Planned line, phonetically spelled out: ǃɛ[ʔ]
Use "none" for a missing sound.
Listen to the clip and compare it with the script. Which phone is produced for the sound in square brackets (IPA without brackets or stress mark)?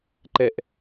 ʔ